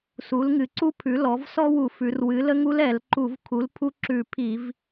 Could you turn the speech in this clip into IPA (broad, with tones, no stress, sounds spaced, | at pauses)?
s u˩˥ l ŋ ɨ˩˧ ǀ u˥ pʰ ʉ˩˥ l ɔ˩˥ v s ɔ˥ w u˧˩˧ f ʉ˩˧ r w ɨ˩˥ l ə˥ ŋ u˥ l ɛ˧˩˧ l ǃ u˧˩˧ v kʰ u˩˥ l pʰ u˥ ǁ ʉ˧˩˧ pʰ i˧˩˧ v